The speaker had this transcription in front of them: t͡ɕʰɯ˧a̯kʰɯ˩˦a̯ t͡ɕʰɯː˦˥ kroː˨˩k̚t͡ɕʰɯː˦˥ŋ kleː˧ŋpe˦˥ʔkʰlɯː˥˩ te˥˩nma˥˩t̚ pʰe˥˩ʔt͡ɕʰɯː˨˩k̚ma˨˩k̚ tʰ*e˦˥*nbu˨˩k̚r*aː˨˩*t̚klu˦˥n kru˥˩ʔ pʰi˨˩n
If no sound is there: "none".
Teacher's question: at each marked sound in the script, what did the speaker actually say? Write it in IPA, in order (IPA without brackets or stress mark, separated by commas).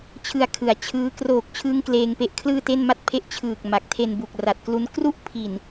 e˧, a˨˩